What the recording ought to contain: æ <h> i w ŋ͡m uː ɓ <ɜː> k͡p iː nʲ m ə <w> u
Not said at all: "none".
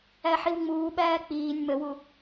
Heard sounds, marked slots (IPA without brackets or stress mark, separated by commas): ħ, æː, w